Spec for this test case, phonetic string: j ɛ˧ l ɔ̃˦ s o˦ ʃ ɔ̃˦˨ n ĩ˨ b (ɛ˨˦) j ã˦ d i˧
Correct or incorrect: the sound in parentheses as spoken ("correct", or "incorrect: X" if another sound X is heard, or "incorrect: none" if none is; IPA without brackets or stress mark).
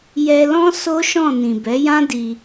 correct